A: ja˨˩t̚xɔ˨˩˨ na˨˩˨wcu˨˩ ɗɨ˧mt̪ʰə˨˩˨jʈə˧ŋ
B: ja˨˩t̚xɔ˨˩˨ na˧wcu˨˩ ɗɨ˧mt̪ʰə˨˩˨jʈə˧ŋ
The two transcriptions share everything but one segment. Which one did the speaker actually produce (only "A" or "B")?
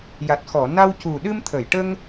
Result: B